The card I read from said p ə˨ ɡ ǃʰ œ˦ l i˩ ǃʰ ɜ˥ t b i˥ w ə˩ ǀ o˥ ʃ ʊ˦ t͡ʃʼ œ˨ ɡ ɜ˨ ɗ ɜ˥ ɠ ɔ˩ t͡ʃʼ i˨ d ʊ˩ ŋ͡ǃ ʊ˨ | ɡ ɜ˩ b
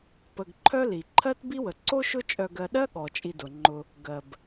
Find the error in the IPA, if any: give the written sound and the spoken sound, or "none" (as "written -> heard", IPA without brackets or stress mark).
none